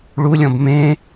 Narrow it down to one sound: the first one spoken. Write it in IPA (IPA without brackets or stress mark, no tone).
ɭ